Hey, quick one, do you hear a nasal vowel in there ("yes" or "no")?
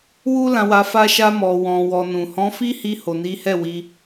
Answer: yes